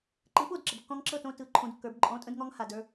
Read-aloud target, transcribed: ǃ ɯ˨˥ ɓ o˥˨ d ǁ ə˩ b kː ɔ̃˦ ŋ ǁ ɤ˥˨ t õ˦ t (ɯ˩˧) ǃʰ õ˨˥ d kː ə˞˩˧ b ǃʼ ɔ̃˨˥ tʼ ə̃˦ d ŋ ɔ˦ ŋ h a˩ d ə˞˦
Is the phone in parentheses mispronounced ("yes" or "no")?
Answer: no